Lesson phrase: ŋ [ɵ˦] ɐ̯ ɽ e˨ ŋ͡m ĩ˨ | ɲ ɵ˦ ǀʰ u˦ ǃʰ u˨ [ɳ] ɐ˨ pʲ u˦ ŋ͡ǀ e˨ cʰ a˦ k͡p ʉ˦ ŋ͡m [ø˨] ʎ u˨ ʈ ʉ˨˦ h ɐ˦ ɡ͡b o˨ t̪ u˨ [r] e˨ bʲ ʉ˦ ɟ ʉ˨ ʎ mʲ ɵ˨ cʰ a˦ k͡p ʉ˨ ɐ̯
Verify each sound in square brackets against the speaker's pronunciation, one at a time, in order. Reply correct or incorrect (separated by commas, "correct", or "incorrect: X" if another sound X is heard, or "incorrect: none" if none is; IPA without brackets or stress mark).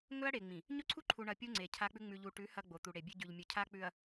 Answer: correct, correct, incorrect: ʉ˨, incorrect: ɽ